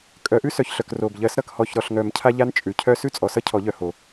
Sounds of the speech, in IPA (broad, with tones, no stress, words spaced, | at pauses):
kʼœ˨˩˦ʔʉ˦ sœ˨˩çɬœ˨˩k ro˨˩b ʎɜ˨˩˦s ɾʌ˨˩khɔ˨˩çɾɔ˨˩ɬ ŋœ˨˩˦mcʰa˦ʎa˦n t͡ʃʼʉ˨˩cʰœ˦ sʉ˦t͡sʼɔ˨˩sʌ˦ cʰɔ˨˩˦ʎœ˨˩ ho˨˩˦